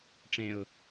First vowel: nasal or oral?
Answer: nasal